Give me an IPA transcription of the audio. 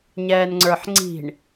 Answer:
ɲ ɛː n ŋ͡ǀ ə˞ ħ ŋ͡ǀ i̤ ɳ

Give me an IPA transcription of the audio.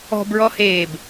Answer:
ɔ̤ b ɹ ɔ h eː b

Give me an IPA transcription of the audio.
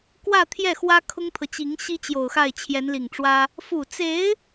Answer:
k w ä˥˧ t̪ʰ j ɛ˥˩ x w ä˥ kʰ ʊ˥ ŋ t̪ʰ ɤ˨ t͡ɕ i˧˥ ŋ ɕ i˥ t͡ɕ j o˨˩ ʊ̯ x a˥˩ ɪ̯ t͡ɕʰ j ɛ˧˥ n l i˨˩ ŋ ʈ͡ʂ w ä˥ | f u˨˩ t͡s e˧˥ ɪ̯

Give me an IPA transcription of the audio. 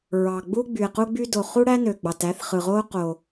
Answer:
ɹ ɑ˩ ɡ͡b u˥ ɡ͡b y˩ e̯ q u˥ ɡ͡b y˥ d o˩ χ u˥ ɽ æ˥ n ø˩ ɡ͡b ɑ˩ t æ˥ θ χ ɯ˩ ʁ o˥ q o˩

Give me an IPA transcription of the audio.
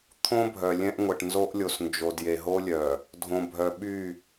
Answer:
t̪ʰ õ˦ bʱ œ˨ lʲ ɛ̃˦ ʔ ŋʷ ɛ˨ ʈ n z o˦ ʔ lʲ o˨ s n d͡ʒ o˨ d j e˨ ɦ o˦ lʲ œ˨ | dʱ õ˨ bʱ œ˨ ɓ y˦˨

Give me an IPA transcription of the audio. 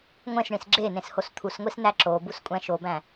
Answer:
ŋʷ ẽ s ɳ ĩ s ɡ͡ǁ e n ẽ s h o s t̪ʰ u s ŋʷ i s n æ ǁ o b u s kʷʼ æ̃ ʃ o b æ̃

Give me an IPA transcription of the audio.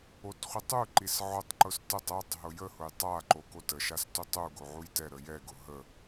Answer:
o t χʷ i tˤ u ǃ i s ʕ ʊ tˤ ǃ ʊ s t ə tˤ ɛ tˤ ɦ ʊ j ə h ʊ j tˤ a ǃ o k o t ə ʃ a s t u tˤ u ɡ o ʕ u j t ɛ ɾ ə j ɛ ɡ ʊ ɦ ə

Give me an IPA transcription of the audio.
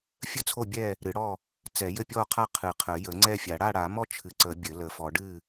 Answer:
fʲ ə˥˨ t͡sʰ o˥˨ bʲ ɛ˥˨ | ɾ ɨ˨˩˦ ɽ ɔ˥˨ | t͡s ɛ˨˩˦ j ɘ˥˨ pʲ ɔ˥˨ qʰ a˥˨ qʰ ɨ˨˩˦ qʰ ə˨˩˦ j ə˨˩˦ ŋ͡ǀ ɛ˥˨ fʲ a˨˩˦ ɽ a˥˨ ɽ a˨˩˦ m ɔ˥˨ t͡ʃʰ ɨ˨˩˦ ǀ ə˨˩˦ bʲ ɘ˨˩˦ l ə˨˩˦ f ɔ˨˩˦ ɖ ɨ˥˨

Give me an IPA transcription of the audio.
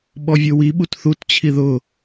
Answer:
ɓ ɔ vʲ o w i ɓ u t θ u t t͡ɕʰ i ð ʊ

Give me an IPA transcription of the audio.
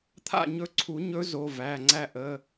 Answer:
t̪ʰ a̰˦˨ ɲ ɵ˧˥ ǀʰ u˨˩˦ ɲ ɵ˧˥ z o˩˧˩ v æ˩˧˩ ŋ͡ǀ æ˦˨ ʔ ə˩˧˩

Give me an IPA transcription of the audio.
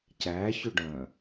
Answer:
c æ ç ʊ ɖ œ̃

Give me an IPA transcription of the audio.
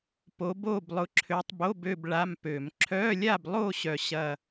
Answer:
p o˨˦ b o˥˨ b lˠ ʊ˨˦ ǁʰ ø˨˦ tˤ b o˧˥˧ b ø˥˨ b ɭ a˧˥˧ m p ø˧˩˧ m ǁʰ œ˧˥˧ lʲ a˥˨ b lˠ o˥˨ ɕ œ˥˨ ɕ ɐ˥˨

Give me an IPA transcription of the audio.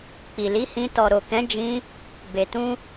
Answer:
k͡p i˨ l i˨˦ h ĩ˧ t ɔ˨ ɾ o˨ k ɛ̃˨˦ d͡ʒ ĩ˧ | b e˨ t ũ˧

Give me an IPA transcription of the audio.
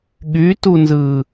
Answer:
ɠ y t u n z ɯ

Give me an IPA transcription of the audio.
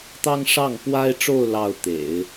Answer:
t̪ ɑ˥ ŋ ʂ ɑ˥˩ ŋ p w a˥ ɪ̯ ʈ͡ʂ o˥˧ ʊ̯ l ɑ˥˩ ʊ̯ t̪ ḛ˨˩˦ ɪ̯

